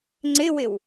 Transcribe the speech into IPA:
ŋ͡ǀ ɪ w ɪ w

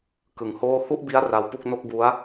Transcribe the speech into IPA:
k ɯ˨˩ ŋ h oː˥˩ h u˥˩ ʔ b i˦˥ a̯ r a˦˥ w p u˥˩ k̚ n o˥˩ k̚ b u˦˥ a̯

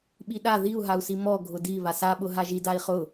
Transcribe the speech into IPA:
ɓ i ɗ a ð i u̯ ɦ a u̯ s i m ɔ ɡʱ ʊ d i β a s a ɓ ʊ ɦ a ʒ i d a i̯ χ ʊ

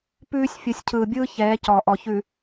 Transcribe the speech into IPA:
p ʉː˦ sʲ fʲ ɯ˨ sʲ cʰ ɯː˨ bʲ ɯː˦ ç ɛː˨˦ c ɔ˨ ʔ ɔ˨ ç ʉ˨

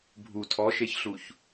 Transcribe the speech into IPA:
bʱ u tʰ ɔ ʃ e ç ɬ u ç

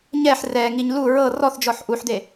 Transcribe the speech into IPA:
ɲ ɛ ħ r ɛ ŋ i ɲ l u ɹ ɤ r ɔ θ d͡ʒ ɔ ħ ʔ u ħ d̪ e

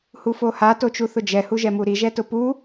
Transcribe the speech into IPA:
h u f o h a t o t͡ʃ u θ ʊ d͡ʒ ɛ h u ʒ ɛ m u ɾ i ʒ ɛ t ʊ p u

